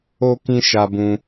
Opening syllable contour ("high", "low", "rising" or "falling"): high